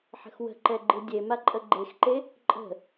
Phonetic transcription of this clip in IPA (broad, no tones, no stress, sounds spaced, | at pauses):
ħ ə̤ x w ə̤ ǃ ɛ ɡ͡ǃ ɨ dʲ e m a ǃʼ ə ɡ͡ǃ e x ǃ e | ǃʼ ə̤